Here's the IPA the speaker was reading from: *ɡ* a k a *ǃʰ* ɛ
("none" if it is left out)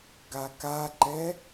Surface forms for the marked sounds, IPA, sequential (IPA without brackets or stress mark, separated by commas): ɡ, ǃ